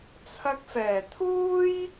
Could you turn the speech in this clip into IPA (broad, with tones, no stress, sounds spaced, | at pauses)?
t͡sʰ ɐ˧ k̚ f ɛː˨˩ t̪ʰ uː˥ j